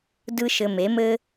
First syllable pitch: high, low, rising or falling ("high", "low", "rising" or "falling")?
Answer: high